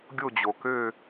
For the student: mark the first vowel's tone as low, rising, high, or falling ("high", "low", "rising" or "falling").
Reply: falling